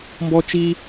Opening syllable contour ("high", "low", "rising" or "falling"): high